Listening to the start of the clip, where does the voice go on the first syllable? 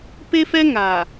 high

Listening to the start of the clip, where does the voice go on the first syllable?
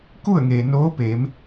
falling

